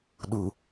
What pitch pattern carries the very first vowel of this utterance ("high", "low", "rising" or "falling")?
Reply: low